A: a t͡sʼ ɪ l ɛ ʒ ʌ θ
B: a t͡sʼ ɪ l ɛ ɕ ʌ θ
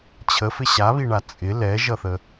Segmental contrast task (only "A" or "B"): A